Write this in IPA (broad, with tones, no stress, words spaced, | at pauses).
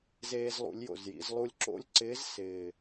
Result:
zeː˧zlˠṵ˩˧lʲjo̰˨˩zjḭ˩˧z lˠu˧lʲǁo̰˧˥lʲǀɪː˧˥zsɪː˨˩